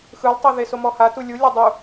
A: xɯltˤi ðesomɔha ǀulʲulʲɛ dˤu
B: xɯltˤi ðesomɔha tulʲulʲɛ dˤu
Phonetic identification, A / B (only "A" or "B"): B